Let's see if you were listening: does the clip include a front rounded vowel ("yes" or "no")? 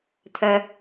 yes